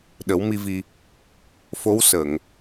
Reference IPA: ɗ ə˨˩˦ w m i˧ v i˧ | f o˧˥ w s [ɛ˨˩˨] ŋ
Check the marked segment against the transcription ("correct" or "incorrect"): incorrect